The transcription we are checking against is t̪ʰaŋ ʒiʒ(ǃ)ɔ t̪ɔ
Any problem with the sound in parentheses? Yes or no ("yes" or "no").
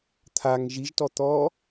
yes